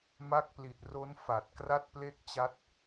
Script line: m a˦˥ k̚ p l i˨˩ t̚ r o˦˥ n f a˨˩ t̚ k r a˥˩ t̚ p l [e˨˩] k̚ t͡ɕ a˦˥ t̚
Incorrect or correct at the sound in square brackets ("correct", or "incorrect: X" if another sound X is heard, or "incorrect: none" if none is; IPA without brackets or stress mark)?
incorrect: e˥˩